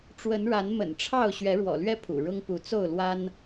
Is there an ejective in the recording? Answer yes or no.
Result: no